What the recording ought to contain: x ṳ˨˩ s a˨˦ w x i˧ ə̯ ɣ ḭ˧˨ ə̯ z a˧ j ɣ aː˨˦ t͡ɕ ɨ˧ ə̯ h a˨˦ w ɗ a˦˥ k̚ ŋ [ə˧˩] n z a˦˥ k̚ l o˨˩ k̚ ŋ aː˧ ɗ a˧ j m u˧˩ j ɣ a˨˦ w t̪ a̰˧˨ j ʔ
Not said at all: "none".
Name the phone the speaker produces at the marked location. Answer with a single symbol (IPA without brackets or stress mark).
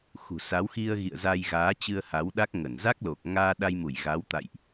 ə˧˩